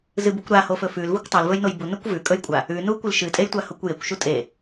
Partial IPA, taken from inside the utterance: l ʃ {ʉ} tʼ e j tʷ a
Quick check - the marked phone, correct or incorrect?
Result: incorrect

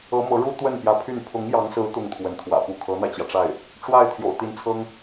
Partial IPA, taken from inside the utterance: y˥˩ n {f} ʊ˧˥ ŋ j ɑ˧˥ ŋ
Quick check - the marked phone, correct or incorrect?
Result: incorrect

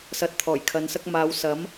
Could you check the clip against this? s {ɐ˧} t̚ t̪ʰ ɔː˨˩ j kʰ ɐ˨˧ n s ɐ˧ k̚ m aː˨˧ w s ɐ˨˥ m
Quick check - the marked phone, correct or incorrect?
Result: incorrect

